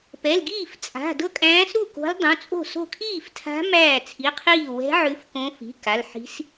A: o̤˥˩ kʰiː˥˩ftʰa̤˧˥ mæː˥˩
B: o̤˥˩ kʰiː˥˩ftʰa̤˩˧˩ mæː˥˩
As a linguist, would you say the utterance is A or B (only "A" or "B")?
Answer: A